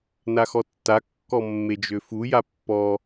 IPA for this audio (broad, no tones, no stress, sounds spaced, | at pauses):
n a x ɔ tː a kː ɔ mː e d͡ʒ ø f u j a pː ɔ